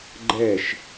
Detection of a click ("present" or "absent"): present